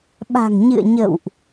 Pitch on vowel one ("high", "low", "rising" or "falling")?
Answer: low